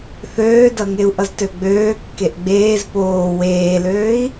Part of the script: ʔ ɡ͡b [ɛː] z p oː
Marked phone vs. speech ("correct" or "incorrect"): incorrect